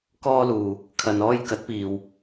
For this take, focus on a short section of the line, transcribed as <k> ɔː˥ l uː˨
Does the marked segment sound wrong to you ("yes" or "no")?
no